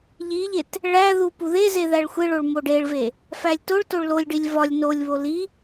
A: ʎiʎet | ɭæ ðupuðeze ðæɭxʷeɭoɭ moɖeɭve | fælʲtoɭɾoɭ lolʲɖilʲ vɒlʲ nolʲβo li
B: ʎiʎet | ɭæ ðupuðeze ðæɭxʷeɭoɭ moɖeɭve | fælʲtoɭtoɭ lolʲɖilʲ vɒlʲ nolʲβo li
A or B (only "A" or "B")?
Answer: B